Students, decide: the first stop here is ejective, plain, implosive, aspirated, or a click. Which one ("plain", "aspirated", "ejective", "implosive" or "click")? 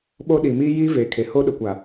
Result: implosive